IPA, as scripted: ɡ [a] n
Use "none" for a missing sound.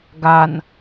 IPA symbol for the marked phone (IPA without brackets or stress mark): a